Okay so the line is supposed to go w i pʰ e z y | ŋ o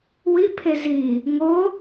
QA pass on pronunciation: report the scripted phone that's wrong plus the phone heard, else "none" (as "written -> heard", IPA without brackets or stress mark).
y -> i